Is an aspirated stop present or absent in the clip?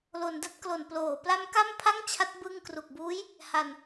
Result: present